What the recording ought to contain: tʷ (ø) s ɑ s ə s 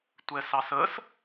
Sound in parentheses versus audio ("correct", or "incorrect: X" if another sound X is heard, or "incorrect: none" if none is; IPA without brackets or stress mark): incorrect: ɛ